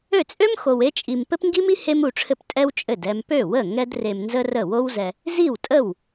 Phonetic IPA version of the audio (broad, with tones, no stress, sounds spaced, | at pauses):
ø˥˩ t͡sʼ ø˥ m x o˧ w e˥ t͡ʃʼ i˧ m p ɘ˥ p ŋ ɡ i˥ m i˥ h e˥ m u˧ ʈ͡ʂʰ ɘ˥˩ p tʼ ɛ˥ w t͡ʃʼ ɘ˥˩ d ɛ˧ m p ø˥˩ w ə˥˩ ŋ ɛ˥ d r e˧ m n z ə˥ r ə˥˩ w o˥ w z ɛ˧ | z i˥˩ w tʼ ə˥˩ w